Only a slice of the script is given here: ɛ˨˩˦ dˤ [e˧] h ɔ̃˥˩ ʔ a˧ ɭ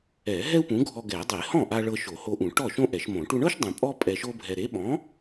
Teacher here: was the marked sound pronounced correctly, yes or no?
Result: no